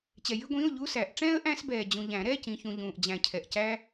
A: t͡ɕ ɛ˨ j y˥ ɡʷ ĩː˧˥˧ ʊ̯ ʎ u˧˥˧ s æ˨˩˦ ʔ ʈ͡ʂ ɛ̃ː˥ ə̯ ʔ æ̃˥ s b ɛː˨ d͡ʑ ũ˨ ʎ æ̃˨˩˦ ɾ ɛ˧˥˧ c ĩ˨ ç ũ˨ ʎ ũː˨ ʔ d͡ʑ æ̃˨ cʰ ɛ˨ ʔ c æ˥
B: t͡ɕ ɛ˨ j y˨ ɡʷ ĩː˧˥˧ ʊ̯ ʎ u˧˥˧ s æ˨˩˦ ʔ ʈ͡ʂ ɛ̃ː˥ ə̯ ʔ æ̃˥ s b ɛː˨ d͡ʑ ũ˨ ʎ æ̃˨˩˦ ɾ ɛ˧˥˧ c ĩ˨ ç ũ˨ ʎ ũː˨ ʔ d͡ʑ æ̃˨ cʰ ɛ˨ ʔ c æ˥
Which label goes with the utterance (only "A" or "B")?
A